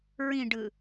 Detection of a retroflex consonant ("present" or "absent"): present